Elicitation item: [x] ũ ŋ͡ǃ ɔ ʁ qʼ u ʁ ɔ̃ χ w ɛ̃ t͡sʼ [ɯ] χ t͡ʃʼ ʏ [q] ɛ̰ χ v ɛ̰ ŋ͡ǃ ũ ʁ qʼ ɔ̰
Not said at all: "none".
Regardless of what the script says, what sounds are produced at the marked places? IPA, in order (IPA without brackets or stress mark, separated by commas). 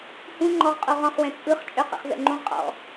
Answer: h, ɯ, q